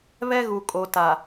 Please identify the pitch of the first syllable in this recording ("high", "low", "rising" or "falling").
high